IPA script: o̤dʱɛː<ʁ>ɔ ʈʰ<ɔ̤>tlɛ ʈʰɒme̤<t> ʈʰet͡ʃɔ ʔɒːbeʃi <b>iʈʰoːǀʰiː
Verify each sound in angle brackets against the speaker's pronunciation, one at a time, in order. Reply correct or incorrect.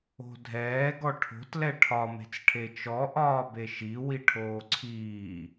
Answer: incorrect: ɡ, incorrect: o̤, incorrect: t͡s, incorrect: w

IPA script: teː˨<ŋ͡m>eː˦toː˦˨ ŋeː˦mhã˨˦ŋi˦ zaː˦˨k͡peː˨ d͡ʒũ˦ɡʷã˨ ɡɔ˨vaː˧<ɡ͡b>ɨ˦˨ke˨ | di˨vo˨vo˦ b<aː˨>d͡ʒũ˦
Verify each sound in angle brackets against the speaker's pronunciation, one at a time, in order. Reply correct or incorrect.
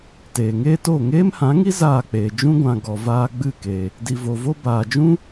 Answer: incorrect: ŋ, correct, correct

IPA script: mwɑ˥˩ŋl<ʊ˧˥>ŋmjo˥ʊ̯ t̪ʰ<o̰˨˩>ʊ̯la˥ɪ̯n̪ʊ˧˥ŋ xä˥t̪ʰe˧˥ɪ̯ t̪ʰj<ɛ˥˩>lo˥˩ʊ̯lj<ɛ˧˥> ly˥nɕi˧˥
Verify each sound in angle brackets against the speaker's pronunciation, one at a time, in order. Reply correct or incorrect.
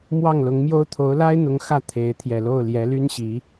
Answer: correct, incorrect: o˧˥, incorrect: ɛ˨˩, correct

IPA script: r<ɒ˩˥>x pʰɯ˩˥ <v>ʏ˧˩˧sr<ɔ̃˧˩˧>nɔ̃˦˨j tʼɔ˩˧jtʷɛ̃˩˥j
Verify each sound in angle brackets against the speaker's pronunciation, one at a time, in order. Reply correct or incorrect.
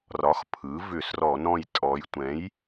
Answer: correct, correct, incorrect: ɔ˧˩˧

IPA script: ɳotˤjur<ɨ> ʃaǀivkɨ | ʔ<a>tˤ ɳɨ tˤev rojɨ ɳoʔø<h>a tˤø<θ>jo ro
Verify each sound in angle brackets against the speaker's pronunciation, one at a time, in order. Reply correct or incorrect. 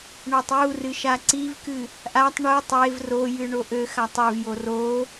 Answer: correct, correct, incorrect: x, incorrect: v

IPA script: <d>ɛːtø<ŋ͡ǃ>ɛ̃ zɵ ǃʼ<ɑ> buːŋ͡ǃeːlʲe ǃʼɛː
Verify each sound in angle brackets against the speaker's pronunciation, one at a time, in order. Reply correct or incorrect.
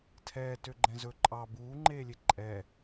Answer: incorrect: tʰ, incorrect: ɡ͡ǃ, correct

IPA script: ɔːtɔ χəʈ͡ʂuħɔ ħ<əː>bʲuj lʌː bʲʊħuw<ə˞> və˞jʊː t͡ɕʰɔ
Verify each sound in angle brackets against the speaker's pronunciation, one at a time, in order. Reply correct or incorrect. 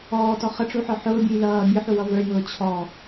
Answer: incorrect: ʊː, incorrect: ʌ

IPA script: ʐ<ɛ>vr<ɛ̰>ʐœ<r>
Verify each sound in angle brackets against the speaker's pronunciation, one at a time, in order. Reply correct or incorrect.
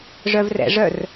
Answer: incorrect: œ, correct, correct

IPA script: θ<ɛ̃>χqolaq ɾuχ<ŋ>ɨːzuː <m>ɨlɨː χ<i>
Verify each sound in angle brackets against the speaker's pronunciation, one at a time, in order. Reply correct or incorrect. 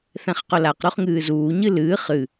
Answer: correct, correct, incorrect: ɲ, incorrect: ɨ

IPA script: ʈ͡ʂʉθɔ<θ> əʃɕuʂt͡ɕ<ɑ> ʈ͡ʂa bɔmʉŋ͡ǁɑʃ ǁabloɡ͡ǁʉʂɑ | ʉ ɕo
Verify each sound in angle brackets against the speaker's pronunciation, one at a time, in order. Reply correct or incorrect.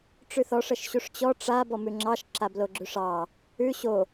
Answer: incorrect: ʂ, incorrect: ɔ

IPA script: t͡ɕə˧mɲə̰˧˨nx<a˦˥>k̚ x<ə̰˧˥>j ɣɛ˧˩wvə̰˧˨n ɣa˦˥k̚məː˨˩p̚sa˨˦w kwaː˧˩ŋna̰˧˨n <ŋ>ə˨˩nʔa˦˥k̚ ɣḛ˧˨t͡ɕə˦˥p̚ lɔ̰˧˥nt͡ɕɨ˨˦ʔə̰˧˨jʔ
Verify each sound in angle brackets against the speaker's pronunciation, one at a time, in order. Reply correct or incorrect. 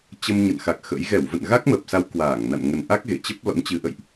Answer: incorrect: a˨˩, correct, correct

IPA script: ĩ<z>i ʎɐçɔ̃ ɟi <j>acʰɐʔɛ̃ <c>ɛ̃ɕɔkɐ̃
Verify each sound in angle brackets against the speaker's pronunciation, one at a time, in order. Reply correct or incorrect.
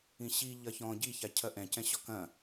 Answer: incorrect: ɕ, incorrect: ç, correct

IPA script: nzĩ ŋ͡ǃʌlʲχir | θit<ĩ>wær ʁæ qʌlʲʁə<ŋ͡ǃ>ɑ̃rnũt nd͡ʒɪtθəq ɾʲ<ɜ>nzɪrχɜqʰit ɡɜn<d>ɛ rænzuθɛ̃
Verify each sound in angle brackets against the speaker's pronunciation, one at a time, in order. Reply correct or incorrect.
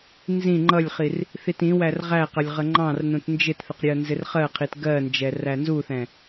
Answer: correct, correct, correct, incorrect: d͡ʒ

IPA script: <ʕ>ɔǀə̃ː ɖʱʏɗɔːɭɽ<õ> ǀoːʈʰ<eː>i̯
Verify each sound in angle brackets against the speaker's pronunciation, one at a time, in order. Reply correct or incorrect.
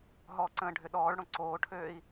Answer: incorrect: ɦ, correct, incorrect: øː

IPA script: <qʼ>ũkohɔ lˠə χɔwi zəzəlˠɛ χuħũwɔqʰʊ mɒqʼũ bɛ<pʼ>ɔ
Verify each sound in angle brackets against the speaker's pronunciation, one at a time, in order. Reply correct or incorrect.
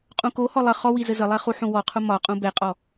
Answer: correct, incorrect: qʼ

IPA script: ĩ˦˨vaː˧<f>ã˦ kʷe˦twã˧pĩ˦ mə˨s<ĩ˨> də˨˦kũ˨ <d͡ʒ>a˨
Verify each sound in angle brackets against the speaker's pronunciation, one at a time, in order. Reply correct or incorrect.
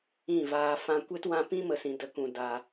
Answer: correct, correct, incorrect: d

